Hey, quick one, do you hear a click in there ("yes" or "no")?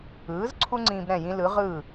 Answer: yes